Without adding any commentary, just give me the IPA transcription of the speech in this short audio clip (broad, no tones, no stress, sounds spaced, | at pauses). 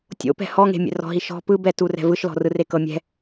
tʲ o̰ p ɛ̤ h ɔ ŋ e̤ mʲ ɛ̰ r ɔ̤ ɦ i ʃ ɔ̤ p ɯ b ɛ t u r ɛ̤ v ɯ ʃ l ɔ̤ r ɯ r e k ɤ mʲ ɛ̤